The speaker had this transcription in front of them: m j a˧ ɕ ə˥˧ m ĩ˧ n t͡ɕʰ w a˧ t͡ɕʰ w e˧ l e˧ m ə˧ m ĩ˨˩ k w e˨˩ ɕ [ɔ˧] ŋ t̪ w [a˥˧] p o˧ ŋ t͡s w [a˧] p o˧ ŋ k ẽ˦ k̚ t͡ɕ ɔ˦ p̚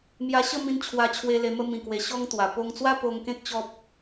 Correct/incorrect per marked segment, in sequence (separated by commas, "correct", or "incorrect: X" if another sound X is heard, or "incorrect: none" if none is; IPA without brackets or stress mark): correct, incorrect: a˨˩, incorrect: a˦